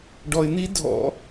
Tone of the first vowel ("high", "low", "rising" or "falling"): low